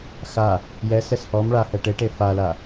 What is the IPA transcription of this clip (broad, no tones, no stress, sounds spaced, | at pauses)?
x a | j ɛ s ɛ s h ɔ m ɭ a h ɛ ʈ e ʈ e f a l a